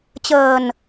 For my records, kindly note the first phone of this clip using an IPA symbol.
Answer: t͡ɕ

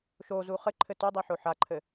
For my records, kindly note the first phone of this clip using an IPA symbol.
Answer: ʃ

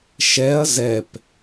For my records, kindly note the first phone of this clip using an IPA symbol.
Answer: ʃ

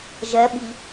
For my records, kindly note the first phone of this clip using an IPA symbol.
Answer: ʒ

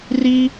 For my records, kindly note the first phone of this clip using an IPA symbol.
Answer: r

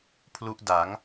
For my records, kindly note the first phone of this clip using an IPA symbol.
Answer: pʰ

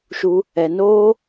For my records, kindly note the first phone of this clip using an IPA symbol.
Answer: ʃ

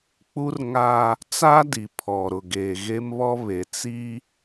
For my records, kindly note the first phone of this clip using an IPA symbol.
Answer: k͡p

